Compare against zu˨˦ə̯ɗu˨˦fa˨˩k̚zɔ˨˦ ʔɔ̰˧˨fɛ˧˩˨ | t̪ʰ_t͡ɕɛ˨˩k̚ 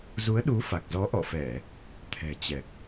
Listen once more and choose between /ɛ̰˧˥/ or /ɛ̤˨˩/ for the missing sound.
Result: ɛ̤˨˩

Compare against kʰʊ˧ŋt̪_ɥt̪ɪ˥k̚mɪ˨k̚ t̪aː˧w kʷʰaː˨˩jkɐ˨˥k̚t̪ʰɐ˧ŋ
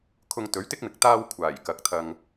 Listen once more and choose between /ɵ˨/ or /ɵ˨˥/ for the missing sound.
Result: ɵ˨˥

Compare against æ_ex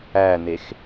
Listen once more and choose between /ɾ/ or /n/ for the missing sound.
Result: n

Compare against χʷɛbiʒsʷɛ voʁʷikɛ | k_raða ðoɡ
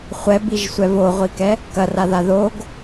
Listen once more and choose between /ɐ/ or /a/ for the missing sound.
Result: ɐ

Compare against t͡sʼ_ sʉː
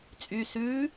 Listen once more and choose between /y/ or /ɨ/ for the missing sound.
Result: y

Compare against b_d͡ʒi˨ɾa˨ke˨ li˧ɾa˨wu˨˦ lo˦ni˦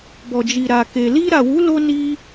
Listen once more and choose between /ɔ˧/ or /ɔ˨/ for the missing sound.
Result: ɔ˨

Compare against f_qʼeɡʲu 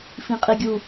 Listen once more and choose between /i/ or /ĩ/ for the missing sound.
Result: ĩ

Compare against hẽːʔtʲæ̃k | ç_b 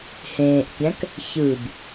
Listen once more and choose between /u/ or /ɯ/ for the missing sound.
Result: ɯ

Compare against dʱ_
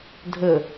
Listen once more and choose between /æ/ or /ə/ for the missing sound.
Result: ə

